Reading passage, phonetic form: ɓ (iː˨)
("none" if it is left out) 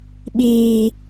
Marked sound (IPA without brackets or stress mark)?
iː˨